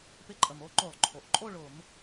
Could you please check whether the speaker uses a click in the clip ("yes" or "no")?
yes